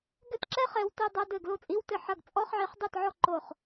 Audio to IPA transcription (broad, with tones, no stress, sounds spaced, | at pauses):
ɡ ɘ˥˨ t ǁ ɛ˥ χ ɛ˨˦ w t ɘ˧˥˧ dˤ ɐ˧˥˧ d ɘ˥˨ ɡ l o˥˨ t͡sʼ i˧˥˧ w t ɘ˥˨ ħ ɐ˥˨ ɡ t͡sʼ ɔ˧˥˧ χ ʕ i˨˦ χ dˤ ɘ˥˨ t ʕ ɔ˥˨ ǃ o˥˨ χ